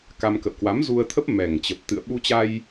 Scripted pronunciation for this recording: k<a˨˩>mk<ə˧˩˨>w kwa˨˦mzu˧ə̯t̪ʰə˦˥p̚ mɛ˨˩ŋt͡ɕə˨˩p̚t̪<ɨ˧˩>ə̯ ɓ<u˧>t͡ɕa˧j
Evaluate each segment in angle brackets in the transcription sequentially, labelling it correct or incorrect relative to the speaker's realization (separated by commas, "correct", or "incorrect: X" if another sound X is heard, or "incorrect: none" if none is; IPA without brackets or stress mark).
incorrect: a˧, incorrect: ə̰˧˨, incorrect: ɨ̰˧˨, correct